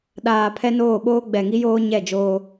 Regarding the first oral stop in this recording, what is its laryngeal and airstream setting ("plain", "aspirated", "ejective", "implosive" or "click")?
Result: implosive